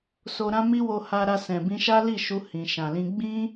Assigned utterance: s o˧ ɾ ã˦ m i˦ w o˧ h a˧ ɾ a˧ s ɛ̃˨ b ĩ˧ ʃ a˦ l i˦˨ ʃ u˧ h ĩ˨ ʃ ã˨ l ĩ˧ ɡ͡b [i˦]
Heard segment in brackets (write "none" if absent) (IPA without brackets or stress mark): ĩ˦